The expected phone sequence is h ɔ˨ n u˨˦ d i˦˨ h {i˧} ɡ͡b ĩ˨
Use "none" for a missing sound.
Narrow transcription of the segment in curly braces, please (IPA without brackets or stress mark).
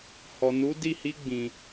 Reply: i˧